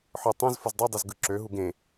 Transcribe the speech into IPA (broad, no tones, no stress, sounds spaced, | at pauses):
ħ ɯ tˤ ẽ z f o z dˤ u dˤ i z ɡ ɯ ǁ ø ɦ u ɡ ẽ